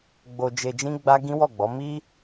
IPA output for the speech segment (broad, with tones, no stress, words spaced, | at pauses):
ɡ͡bo˧ d͡ʒe˧d͡ʒĩ˦ɡ͡ba˦ ɡĩ˦wɔ˦˨ɡ͡bɔ˨˦ mi˦